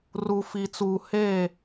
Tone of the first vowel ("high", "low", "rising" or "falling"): low